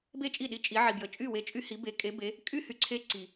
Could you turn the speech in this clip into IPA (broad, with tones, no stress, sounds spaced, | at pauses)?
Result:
b e˥˩ t͡ʃʼ i˥˩ ɗ i˧ t͡ʃʼ i˩˧ ʕ i˩ b j ə˩ t͡ʃʼ y˥˩ w e˧ t͡ʃʼ y˧ h i˩˧ b e˩˧ kʼ e˩˧ b e˩˧ | kʼ y˥˩ h y˧ ǀʰ e˧ ǀ i˩